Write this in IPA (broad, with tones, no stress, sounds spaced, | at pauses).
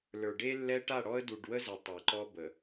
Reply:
l ə˞˨ ɖ e˦ lː ɛ˦ ʈ a˦˨ ɽ ɔ˦ ə̯ d u˨ ɖ w ə˦ z ə˨ tˤ e˨ ǃ ɔ˦ b ə˨